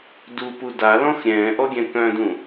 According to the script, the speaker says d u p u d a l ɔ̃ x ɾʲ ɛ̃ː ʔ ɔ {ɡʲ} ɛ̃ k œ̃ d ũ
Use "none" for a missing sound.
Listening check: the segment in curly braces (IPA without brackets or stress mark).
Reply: ɡʲ